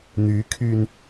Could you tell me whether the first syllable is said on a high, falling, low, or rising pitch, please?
rising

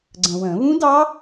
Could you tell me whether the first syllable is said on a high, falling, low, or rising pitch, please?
low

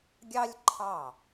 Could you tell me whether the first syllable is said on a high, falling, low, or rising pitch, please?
high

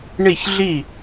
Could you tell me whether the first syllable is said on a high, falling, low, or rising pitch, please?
falling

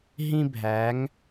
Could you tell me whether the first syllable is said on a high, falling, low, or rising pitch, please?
high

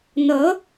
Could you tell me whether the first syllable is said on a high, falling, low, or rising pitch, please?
rising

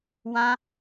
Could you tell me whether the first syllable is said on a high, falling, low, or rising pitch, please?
high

